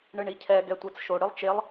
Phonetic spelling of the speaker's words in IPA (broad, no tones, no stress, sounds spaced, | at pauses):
ɳ ɨ ɳ i cʰ ɛ ɡ ɛ tʷ ɛ t͡s ʃ o ɽ ɨ lˠ t͡ʃ e lˠ